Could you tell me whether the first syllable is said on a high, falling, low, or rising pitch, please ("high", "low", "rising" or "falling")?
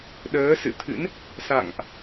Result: rising